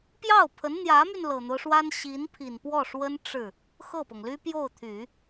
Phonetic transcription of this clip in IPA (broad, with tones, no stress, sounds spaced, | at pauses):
p j ɑ˥˩ ʊ̯ pʰ ə˧˥ n n̪ j ä˧˥ m y˧ n l ɤ˨˩ n̪ o˦ ʊ̯ ʂ w a˥ n ɕ i˧˥ n pʰ i˨˩ n p w ɔ˥˩ ʂ w ə˥ n ʈ͡ʂ ɻ̩˥˩ | x ɤ˥˩ p ɤ˩ ŋ l y˥ p j o˥˩ ʊ̯ t̪ʰ y˨˩˦